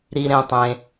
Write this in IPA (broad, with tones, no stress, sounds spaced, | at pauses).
ɾ i˧ ɾ ẽ˧ tˤ ẽ˧